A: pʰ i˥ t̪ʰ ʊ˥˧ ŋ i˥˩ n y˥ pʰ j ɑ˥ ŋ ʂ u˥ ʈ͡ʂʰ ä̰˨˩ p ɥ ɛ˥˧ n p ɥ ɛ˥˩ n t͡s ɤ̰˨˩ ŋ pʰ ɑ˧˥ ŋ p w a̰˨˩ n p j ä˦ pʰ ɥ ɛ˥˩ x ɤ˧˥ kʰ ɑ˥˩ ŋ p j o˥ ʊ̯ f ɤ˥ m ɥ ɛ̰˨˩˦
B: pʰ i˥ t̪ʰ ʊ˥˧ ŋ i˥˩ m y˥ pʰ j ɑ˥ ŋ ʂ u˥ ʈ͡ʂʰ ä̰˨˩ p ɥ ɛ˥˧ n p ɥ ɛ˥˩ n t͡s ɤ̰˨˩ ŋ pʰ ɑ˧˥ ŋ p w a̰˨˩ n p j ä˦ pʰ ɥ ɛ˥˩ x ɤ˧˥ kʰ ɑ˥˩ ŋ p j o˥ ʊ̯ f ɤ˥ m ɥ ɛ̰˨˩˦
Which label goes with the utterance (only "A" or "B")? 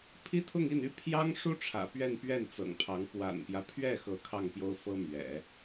A